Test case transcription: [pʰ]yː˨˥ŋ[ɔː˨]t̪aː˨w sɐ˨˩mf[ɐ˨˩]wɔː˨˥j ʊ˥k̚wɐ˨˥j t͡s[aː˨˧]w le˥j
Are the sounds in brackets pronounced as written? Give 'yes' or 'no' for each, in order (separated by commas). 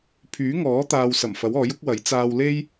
yes, no, no, no